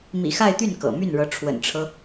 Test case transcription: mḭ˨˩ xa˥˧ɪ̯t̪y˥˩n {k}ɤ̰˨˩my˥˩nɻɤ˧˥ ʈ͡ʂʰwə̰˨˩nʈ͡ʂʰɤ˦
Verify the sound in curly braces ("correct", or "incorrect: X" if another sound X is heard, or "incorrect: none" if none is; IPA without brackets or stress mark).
correct